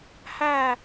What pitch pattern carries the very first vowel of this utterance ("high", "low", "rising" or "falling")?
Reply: falling